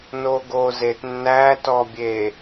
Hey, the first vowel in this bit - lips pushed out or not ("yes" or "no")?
yes